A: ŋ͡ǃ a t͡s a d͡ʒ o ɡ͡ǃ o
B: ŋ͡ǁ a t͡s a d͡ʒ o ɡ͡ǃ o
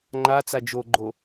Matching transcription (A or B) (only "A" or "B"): A